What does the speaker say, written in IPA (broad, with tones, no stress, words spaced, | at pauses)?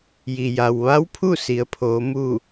ji˩ja˩wʋa˧˥wpʰu˥˨ si˩˧ə̯pʰoː˩˧ mu˥˨